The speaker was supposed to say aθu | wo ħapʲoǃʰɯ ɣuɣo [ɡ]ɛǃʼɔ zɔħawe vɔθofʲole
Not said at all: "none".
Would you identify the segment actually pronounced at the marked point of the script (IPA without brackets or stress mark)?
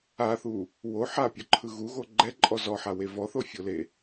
ɡ͡ǃ